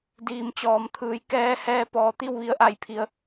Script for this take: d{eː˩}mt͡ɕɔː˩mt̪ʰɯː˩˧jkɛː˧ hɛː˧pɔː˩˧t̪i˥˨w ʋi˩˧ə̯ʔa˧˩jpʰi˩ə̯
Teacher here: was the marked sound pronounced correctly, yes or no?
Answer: no